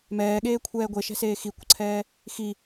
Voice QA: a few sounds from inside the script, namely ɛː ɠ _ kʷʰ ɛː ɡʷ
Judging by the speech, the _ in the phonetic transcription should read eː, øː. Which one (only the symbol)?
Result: eː